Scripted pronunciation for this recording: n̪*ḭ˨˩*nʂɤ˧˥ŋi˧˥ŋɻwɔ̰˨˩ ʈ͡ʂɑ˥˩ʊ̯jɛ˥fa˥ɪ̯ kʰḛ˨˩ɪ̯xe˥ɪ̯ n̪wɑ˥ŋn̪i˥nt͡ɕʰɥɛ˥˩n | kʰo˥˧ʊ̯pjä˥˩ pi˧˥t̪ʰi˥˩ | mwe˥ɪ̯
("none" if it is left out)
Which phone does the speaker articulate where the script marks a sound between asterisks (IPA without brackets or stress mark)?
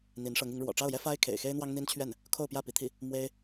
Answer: i˧˥